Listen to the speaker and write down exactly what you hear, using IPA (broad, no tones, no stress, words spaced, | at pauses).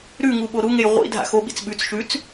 ɾʉŋu ɓoɾuŋej ʁʷḭ dʱa̰xoɓḭt͡s ɓʉt͡s ʃʉt͡s